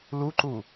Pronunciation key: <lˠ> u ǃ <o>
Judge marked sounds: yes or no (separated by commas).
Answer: no, no